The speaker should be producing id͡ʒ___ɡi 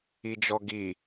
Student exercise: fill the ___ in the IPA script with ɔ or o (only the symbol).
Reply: ɔ